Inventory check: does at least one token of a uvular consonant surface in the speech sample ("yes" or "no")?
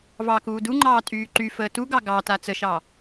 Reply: no